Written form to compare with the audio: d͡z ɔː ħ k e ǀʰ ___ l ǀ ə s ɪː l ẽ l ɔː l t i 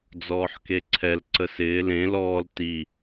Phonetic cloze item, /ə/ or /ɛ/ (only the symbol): ɛ